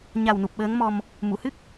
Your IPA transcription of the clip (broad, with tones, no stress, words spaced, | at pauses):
ɲa˨˩wnu˨˩p̚ ɓəː˧˥ŋmɔ˧m | mu˨˩˨hɨ˦˥k̚